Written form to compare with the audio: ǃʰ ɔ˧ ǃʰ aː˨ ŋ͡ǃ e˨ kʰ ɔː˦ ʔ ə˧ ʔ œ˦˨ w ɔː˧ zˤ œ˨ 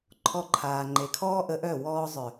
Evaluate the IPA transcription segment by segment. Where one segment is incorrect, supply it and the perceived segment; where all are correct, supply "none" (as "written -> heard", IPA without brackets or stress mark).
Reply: none